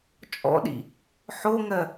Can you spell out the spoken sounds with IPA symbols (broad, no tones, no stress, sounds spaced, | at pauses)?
t͡ʃʼ ɔ̰ ɗ ḭ | ħ o ŋ ɜ